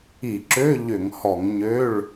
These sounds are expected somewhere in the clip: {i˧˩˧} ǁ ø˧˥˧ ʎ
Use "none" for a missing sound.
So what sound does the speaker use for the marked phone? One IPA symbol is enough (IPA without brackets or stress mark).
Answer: i˧˩˧